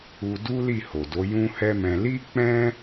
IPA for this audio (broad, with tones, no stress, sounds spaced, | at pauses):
u˧ d u˦ l i˦˨ h o˨ d o˨˦ j ũ˦ h ɛ˦ m ɛ̃˧ l i˦ k͡p ɛ̃˦